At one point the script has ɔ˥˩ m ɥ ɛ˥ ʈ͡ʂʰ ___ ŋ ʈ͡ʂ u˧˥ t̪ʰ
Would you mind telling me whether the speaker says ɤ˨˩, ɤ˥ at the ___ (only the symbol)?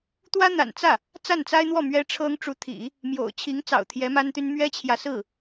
ɤ˥